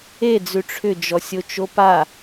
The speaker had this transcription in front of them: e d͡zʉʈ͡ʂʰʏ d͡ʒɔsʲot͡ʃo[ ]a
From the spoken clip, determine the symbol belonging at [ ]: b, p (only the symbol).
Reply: p